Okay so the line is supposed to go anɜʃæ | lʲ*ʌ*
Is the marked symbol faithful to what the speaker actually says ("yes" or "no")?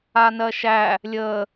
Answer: no